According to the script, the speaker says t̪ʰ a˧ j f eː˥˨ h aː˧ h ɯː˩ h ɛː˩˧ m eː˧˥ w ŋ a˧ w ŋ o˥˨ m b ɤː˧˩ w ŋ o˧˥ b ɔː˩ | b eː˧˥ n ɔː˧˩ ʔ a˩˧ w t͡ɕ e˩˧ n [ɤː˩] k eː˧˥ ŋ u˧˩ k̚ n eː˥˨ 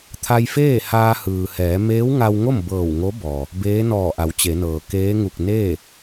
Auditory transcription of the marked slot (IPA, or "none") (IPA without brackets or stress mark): ɤː˩